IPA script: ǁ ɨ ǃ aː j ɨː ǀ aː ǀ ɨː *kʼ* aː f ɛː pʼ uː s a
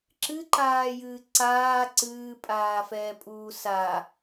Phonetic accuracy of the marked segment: incorrect: pʼ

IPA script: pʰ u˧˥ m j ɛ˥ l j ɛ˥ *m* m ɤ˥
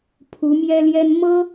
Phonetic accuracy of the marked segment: incorrect: n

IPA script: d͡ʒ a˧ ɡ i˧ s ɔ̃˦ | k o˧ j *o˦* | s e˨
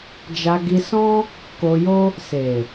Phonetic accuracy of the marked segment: correct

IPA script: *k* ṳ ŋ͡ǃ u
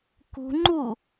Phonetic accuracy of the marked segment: correct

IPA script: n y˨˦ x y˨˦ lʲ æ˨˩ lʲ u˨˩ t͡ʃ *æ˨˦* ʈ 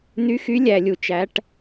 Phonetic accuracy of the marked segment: correct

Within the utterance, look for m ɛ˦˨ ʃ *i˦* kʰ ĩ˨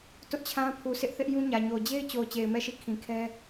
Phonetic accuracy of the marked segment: incorrect: i˦˨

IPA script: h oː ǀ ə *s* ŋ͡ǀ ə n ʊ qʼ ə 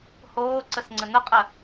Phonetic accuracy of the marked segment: correct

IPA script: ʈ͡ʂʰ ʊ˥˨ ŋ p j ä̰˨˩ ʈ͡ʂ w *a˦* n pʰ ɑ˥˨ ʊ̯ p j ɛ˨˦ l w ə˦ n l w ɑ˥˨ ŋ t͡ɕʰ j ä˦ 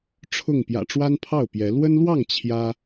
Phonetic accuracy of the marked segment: correct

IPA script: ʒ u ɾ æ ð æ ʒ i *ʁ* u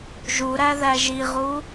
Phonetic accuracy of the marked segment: correct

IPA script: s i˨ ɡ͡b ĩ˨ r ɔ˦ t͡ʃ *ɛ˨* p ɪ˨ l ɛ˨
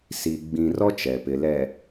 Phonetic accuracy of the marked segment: correct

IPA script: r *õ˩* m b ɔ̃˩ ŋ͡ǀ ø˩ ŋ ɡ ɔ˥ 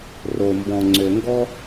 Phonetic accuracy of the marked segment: incorrect: o˩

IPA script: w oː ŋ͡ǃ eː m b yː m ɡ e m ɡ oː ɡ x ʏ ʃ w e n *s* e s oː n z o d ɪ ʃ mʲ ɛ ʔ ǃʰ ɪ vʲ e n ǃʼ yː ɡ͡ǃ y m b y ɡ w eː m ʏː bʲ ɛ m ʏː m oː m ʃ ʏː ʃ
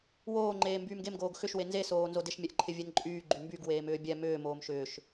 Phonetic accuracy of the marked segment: incorrect: z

